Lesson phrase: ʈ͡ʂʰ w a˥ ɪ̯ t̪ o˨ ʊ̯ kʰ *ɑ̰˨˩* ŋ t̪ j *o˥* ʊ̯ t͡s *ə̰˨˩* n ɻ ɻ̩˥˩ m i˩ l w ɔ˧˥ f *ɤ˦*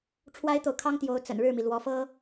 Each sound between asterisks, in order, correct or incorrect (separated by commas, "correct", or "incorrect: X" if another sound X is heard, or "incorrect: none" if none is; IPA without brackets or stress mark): incorrect: ɑ˥, incorrect: o˧˥, correct, incorrect: ɤ˥